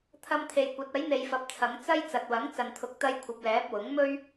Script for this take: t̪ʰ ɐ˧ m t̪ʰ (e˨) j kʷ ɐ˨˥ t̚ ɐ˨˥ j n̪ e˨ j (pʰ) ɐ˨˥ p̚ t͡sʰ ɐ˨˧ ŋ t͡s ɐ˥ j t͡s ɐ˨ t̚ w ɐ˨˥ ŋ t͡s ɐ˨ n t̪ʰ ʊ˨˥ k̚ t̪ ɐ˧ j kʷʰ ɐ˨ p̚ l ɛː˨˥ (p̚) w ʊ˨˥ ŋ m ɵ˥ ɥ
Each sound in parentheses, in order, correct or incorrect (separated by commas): correct, incorrect, correct